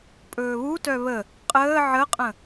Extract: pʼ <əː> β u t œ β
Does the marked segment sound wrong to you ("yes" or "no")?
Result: yes